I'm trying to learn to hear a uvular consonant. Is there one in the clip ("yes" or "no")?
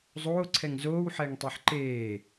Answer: no